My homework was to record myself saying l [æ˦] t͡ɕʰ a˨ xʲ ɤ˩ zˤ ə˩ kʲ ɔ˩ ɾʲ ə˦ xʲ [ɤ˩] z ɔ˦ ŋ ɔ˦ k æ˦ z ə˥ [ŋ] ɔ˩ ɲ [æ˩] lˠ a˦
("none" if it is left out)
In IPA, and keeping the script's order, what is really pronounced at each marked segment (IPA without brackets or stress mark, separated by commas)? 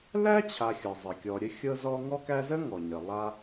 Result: æ˥, ɤ˦, ŋ, ə˩